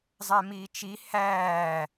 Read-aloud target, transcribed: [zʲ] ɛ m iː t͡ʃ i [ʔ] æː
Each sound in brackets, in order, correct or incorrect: incorrect, incorrect

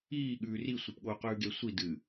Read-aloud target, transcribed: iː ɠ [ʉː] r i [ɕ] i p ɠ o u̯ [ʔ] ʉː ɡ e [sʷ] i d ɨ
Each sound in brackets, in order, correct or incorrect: correct, incorrect, incorrect, correct

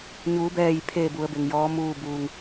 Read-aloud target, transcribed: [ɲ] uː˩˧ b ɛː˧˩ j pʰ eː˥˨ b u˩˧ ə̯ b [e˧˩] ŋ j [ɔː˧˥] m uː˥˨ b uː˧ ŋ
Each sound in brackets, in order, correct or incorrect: correct, incorrect, correct

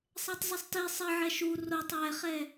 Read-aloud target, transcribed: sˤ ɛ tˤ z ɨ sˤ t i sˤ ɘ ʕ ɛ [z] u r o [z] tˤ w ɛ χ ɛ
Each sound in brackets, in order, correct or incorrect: incorrect, incorrect

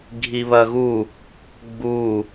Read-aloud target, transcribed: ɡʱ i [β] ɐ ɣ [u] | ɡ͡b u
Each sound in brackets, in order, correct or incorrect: correct, correct

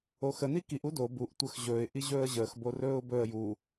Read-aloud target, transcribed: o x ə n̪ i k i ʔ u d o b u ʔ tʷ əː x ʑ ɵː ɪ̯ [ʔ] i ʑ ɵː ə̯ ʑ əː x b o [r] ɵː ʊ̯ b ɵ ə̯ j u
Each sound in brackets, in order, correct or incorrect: correct, correct

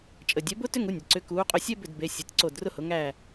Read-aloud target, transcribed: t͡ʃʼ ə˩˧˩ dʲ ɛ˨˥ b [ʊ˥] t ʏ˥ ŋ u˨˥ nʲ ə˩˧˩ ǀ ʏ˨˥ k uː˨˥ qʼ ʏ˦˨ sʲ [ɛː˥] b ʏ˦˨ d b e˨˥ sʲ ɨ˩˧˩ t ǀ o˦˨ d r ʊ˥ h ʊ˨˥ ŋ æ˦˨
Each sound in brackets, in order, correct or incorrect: correct, incorrect

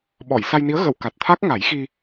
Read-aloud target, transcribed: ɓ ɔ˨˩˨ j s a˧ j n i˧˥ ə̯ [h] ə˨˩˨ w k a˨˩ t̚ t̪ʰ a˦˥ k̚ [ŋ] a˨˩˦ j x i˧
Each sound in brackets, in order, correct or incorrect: incorrect, correct

